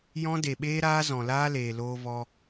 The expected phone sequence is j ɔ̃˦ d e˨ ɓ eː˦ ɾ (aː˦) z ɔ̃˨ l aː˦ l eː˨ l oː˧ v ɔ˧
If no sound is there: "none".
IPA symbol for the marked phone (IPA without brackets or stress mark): aː˦